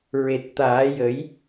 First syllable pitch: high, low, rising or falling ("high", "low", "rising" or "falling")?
low